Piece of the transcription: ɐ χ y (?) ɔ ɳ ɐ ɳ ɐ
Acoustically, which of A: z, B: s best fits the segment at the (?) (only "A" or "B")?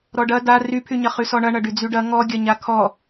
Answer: B